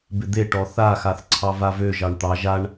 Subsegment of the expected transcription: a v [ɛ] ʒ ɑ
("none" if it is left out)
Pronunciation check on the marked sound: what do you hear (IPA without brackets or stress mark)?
ø